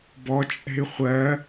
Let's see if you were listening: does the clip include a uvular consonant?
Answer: yes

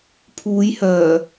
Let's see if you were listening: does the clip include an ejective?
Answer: no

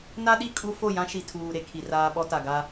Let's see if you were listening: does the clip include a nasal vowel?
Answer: yes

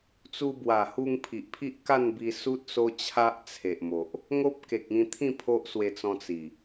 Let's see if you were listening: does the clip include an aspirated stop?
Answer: yes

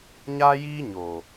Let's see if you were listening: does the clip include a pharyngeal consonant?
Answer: no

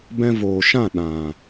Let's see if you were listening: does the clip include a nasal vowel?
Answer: yes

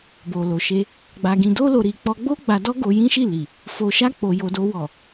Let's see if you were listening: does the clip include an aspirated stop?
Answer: no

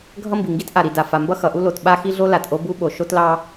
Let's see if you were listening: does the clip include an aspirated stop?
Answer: no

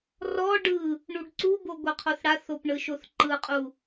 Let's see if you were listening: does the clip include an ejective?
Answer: yes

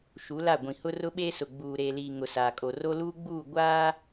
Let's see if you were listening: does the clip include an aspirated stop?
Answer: no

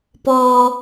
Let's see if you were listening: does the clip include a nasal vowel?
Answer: no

